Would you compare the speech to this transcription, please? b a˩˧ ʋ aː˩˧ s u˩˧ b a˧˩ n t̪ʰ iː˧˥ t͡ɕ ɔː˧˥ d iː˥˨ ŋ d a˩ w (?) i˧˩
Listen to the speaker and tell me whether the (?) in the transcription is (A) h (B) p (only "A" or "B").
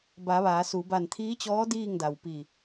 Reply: B